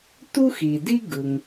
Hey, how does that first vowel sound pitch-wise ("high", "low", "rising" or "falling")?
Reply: high